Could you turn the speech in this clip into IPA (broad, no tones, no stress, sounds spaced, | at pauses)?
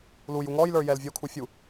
l u j u ŋ ɔ j l ə˞ j ɛ l vʲ o kʰ u fʲ u